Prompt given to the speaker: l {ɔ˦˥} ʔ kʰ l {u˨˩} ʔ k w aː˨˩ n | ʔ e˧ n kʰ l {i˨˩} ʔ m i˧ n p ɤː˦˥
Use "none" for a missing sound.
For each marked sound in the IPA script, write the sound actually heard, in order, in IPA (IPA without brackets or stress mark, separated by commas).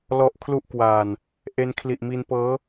ɔ˦˥, u˦˥, i˨˩